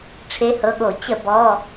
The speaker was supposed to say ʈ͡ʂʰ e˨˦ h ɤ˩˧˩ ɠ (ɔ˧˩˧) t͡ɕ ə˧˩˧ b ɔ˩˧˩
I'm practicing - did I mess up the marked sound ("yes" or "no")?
yes